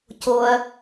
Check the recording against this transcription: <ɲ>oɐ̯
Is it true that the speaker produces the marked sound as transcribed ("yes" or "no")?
no